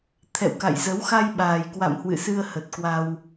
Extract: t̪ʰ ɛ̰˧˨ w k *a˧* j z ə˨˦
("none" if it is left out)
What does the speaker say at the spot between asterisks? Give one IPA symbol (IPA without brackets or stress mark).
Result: a̰˧˨